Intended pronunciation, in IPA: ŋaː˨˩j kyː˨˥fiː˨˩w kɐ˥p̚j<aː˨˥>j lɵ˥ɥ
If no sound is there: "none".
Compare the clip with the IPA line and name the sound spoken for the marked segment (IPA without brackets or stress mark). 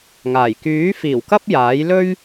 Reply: aː˨˥